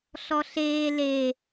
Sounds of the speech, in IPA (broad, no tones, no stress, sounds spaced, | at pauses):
ɬ ɔ ɬ eː l e